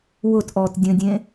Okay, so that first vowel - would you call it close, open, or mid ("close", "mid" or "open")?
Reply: close